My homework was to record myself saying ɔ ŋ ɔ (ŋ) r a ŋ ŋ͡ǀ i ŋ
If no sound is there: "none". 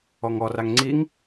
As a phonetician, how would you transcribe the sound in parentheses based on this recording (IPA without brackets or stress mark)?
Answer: none